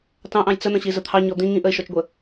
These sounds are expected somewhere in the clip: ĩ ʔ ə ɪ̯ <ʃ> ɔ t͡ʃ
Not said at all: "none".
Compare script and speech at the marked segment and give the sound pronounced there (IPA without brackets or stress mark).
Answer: ʃ